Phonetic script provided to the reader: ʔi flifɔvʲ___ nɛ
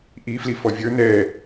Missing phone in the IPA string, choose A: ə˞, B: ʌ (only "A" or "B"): A